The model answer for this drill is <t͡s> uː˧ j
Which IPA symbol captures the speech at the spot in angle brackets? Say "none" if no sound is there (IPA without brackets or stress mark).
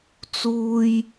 t͡s